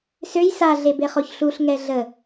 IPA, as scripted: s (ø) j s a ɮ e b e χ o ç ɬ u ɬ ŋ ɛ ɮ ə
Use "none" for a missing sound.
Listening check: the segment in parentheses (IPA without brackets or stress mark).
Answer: ø